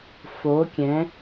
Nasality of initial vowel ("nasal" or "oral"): oral